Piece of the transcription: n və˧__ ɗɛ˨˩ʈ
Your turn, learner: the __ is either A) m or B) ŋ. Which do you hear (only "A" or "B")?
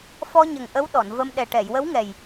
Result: A